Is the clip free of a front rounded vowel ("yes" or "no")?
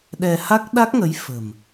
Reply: yes